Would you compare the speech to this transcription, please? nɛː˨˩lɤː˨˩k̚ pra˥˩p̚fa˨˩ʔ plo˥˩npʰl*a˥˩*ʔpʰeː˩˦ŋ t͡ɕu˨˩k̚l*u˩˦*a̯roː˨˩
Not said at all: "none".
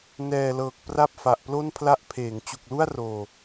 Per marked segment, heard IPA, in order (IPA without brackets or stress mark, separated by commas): a˦˥, u˥˩